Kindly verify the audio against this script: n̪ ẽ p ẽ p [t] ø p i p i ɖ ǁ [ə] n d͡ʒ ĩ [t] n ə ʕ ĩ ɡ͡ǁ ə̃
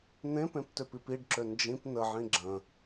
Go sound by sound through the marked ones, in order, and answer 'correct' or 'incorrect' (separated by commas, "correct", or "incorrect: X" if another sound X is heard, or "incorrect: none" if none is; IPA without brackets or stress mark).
correct, incorrect: ø, incorrect: p